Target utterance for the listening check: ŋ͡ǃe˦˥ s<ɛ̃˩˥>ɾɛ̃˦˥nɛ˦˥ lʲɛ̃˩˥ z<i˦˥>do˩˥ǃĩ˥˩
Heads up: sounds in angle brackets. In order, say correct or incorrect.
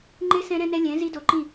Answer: incorrect, correct

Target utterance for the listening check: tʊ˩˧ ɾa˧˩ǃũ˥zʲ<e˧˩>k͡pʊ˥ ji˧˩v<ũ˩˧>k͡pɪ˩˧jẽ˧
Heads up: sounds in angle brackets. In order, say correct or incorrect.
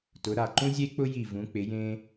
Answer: incorrect, correct

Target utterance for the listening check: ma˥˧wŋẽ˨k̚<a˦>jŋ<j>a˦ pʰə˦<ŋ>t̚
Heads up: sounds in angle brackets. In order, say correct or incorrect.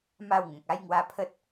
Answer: correct, incorrect, incorrect

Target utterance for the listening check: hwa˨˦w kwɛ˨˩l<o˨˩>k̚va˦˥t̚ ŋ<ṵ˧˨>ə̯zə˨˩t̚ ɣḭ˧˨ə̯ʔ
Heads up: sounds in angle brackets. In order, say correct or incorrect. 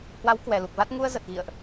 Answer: incorrect, incorrect

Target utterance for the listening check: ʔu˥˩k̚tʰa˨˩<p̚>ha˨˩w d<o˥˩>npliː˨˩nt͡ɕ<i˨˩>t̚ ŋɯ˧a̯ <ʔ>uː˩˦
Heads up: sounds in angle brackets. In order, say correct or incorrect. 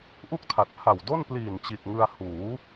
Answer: incorrect, correct, correct, incorrect

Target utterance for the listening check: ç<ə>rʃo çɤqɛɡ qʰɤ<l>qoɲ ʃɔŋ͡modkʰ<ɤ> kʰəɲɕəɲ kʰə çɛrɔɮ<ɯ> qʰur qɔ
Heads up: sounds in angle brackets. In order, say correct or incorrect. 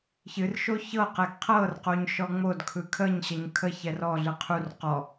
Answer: incorrect, incorrect, incorrect, correct

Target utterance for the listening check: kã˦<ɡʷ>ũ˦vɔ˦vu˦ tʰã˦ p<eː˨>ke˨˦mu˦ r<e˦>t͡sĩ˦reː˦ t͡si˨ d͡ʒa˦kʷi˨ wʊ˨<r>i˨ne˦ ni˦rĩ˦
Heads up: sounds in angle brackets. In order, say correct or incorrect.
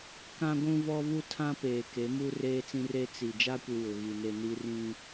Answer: correct, correct, incorrect, incorrect

